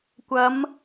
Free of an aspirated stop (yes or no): yes